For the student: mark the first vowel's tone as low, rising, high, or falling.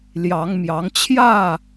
rising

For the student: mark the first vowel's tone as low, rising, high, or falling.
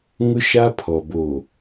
high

